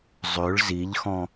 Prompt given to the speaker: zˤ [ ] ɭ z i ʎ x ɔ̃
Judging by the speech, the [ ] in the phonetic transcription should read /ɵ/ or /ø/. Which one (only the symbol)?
ø